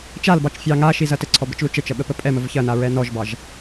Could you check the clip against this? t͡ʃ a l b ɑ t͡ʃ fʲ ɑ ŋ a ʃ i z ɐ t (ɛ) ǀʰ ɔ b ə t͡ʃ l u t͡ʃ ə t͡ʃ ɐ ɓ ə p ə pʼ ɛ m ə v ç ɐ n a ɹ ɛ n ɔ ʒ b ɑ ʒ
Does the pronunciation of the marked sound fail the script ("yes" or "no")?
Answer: yes